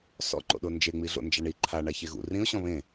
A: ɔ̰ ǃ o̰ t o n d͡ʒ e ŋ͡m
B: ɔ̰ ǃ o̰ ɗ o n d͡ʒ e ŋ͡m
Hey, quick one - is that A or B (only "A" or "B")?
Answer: B